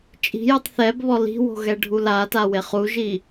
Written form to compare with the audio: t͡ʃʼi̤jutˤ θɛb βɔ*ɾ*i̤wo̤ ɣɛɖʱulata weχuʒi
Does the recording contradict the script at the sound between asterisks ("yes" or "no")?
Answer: yes